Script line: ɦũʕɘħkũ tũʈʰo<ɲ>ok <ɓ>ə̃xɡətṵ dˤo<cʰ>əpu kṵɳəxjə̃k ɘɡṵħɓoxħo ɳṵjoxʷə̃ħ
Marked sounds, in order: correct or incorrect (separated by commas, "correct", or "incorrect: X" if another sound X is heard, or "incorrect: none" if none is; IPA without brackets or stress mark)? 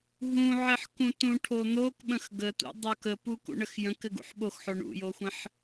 incorrect: n̪, correct, incorrect: k